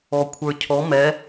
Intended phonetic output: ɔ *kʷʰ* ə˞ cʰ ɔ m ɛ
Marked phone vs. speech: correct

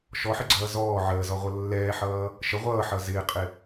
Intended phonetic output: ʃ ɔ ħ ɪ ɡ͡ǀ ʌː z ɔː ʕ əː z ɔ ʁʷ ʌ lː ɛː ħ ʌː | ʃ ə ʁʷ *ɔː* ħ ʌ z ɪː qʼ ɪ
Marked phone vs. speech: incorrect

